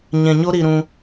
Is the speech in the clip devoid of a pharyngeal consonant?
yes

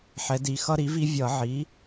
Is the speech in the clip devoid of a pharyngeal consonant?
no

